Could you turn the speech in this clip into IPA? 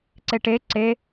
ǀeʈe ǀe

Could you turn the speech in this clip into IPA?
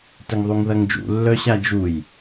təŋðˤuŋðɐŋd͡ʒṵ lːœɕad͡ʒuj

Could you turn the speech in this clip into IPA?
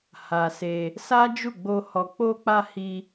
ha˨ se˧ | sa˦d͡ʒu˦˨ɡ͡bo˧ hɔ˨k͡po˧k͡pa˧ hi˧

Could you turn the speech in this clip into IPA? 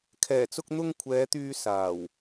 kʰɛː˨˩t͡sʊ˧k̚n̪ʊ˧ŋ kʷʰɛː˨˧t̪yː˧ saː˨˩w

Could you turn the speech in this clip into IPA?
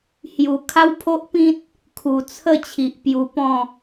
hju˨˩ kʰa˦wpʰo˦ʔpĩ˦t̚ | kʰu˨˩t͡sʰə˥˧ t͡ɕʰi˨ʔpju˧pɔ̃˥˧

